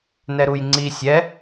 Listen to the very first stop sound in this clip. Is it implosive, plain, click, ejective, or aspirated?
click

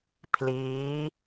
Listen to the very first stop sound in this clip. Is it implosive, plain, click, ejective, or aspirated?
aspirated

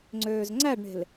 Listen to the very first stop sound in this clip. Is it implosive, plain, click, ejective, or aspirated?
click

